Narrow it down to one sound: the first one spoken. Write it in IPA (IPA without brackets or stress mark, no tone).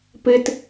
p